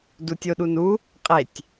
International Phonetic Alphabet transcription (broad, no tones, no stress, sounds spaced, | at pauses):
d u tʲ o ɗ u n u | qʼ e tʲ